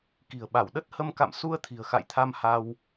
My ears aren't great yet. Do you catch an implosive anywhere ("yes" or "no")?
yes